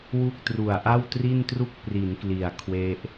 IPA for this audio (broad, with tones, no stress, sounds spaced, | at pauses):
w u˥˩ k̚ t r u˨˩ a̯ ʔ a˥˩ w t r i˥˩ n t r u˥˩ k̚ p r i˩˦ n k l i˨˩ a̯ kʰ w e˦˥ ʔ